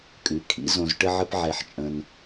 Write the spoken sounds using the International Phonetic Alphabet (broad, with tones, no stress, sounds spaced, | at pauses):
kʼ ʉ˩˥ kʰ ḭ˩˥ z õ˧ z ʈ ə˥ ʕ ə˥ p ʕ ɛ˧ ħ t͡ʃʼ ə̃˧ n